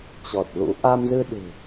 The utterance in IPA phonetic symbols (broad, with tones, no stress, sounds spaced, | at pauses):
t͡ɕ ɔ˨˩ t̚ l ṵ˧˥ ʔ a˧ m z ɨ˧ ɗ ɨ̤˨˩